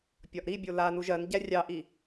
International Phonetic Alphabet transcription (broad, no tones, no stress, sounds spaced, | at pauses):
pʲ ɒ ʔ ɾ i bʲ o l a n u ʒ ɜ n ɟ æ rʲ ɑ ʔ i